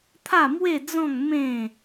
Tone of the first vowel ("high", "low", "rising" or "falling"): falling